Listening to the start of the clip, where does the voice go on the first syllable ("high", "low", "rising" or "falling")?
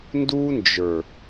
high